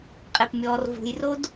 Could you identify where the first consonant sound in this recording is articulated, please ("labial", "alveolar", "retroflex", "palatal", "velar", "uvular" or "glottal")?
uvular